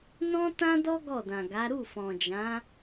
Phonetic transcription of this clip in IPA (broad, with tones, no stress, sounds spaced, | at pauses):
n ɔ̃˦ t ã˦ d ɔ˦ ɡ ɔ˦˨ d ã˨ ɡ a˨˦ ɾ u˦˨ f ɔ̃˨ d͡ʒ ã˨˦